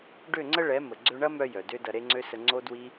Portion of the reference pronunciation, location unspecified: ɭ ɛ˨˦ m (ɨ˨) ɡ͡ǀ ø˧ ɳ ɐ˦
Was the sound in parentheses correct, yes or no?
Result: no